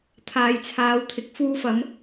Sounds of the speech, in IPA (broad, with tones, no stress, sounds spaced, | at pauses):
t̪ʰ aː˨ j t͡sʰ aː˨˧ w t̪ʰ ɪ˨ k̚ f uː˧ f ɐ˨˧ m